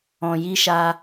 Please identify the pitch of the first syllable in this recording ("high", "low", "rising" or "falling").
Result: low